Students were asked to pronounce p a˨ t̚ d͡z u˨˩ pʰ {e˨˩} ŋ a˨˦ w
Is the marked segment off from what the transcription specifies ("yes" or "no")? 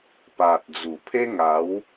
yes